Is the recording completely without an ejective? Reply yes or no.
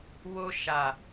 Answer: yes